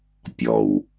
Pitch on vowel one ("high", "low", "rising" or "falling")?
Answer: low